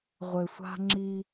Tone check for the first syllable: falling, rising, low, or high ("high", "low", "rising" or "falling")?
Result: low